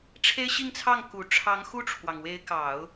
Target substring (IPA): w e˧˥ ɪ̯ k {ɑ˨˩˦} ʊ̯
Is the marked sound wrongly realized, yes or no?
no